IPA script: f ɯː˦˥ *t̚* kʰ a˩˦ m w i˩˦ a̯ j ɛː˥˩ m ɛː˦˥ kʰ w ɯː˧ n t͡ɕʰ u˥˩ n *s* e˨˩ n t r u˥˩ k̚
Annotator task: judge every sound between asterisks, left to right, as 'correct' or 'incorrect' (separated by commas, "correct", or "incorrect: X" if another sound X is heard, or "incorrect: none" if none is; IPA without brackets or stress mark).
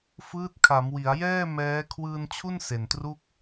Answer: correct, correct